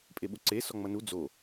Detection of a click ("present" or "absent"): present